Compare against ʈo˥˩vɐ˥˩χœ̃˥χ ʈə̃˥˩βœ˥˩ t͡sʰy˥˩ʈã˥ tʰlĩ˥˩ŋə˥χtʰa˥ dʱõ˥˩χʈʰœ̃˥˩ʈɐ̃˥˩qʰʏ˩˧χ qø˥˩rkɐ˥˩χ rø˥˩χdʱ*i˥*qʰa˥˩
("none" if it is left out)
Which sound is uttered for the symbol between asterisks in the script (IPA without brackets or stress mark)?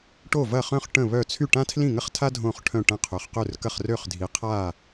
i˩˧